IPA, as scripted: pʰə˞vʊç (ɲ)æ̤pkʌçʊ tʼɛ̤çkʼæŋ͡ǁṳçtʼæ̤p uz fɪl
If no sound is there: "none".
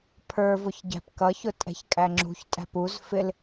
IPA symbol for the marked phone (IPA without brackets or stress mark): ɟ